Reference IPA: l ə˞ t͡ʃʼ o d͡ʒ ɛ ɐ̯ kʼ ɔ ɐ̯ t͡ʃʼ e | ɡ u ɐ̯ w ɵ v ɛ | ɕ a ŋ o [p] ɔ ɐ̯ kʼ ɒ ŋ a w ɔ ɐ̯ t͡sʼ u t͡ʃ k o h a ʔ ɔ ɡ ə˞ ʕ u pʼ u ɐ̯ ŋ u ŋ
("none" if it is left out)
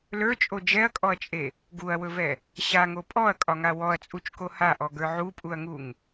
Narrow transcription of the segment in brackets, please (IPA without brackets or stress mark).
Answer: pʼ